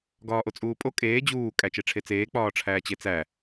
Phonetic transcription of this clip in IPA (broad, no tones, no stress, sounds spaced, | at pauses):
ɡ ɒː ʔ o t͡sʼ uː pʼ o kʼ eː d͡ʑ uː kʼ æ t͡ʃ e ʈ͡ʂʰ e t͡s eː k͡p ɒː ʈ͡ʂʰ æː t͡ɕ e t͡s æ